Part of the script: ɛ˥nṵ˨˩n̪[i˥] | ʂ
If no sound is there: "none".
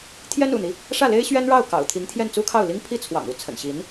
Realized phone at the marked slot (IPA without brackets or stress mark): i˦